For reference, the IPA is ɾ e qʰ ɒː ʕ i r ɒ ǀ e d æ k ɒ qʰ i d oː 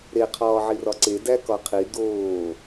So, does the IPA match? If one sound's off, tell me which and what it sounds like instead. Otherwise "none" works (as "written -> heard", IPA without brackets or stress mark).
none